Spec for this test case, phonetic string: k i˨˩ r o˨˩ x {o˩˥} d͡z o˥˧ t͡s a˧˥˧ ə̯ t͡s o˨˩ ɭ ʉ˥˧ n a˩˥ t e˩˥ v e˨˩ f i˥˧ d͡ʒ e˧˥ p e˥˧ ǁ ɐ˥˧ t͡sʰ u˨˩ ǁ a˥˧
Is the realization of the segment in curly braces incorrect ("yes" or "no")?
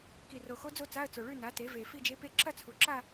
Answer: yes